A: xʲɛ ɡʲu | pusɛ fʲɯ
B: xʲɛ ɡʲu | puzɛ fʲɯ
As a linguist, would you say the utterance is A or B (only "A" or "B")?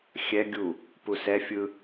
A